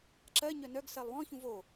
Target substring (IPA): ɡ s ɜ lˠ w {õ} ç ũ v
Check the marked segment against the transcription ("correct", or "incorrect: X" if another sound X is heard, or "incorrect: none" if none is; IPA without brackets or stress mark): incorrect: ɔ̃